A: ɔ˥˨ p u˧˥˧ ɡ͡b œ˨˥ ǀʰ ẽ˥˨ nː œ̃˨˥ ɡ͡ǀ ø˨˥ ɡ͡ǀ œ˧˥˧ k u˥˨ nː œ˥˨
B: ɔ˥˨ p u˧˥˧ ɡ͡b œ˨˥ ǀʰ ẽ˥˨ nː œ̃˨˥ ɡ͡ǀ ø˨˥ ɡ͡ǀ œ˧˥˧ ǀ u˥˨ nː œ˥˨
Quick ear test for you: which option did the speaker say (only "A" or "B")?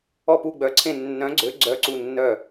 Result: B